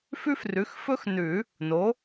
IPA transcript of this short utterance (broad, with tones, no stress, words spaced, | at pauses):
fʉ˥frʉ˩˥xfɵ˥x nʉ˨˩˦ | no˩˥